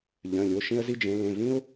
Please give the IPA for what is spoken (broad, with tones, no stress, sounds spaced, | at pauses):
ʎ œ̃˩˧˩ lʲ o˩˧˩ ʃ ĩ˦ ə̯ z i˦ d͡ʒ ẽ˨˦ l ẽ˩˧˩ v ĩ˦ ʊ̯